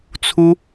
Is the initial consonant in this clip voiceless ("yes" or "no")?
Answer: yes